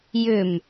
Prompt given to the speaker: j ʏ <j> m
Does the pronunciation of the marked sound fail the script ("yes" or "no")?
yes